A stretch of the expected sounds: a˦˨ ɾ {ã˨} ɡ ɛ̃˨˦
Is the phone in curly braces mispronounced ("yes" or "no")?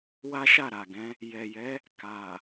yes